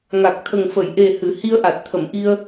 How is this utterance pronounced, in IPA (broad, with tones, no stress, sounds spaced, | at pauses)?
ŋ a˨˩ k̚ t̪ʰ ə˨˩ ŋ f ə˨˩˨ j ʔ e˨˩ h ɨ˨˩˦ h i˧ ə̯ ʔ a˨˩ t̚ t̪ʰ ə˨˩˨ m ʔ i˧ ə̯